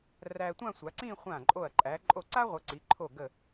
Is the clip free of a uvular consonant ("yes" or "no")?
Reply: no